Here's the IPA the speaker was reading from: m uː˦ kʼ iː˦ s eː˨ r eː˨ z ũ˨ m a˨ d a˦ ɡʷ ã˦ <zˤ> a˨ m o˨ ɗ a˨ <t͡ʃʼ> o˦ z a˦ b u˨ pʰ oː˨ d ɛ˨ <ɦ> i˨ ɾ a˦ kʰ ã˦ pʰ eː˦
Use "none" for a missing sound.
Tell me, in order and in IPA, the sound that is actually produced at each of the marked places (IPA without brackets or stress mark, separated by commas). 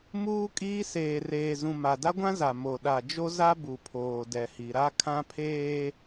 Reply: z, d͡ʒ, h